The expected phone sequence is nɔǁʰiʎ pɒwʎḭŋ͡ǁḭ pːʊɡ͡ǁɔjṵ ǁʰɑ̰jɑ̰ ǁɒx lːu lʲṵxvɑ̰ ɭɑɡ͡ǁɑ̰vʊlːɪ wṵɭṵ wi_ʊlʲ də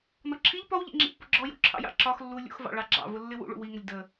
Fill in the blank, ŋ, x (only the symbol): ŋ